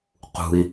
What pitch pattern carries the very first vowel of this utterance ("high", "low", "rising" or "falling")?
high